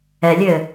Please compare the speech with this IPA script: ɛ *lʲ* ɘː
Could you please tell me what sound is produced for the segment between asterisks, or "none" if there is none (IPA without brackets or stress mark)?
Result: lʲ